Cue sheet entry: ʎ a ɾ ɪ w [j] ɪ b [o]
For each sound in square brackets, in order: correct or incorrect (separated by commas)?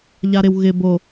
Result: incorrect, correct